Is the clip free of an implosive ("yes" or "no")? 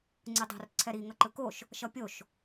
yes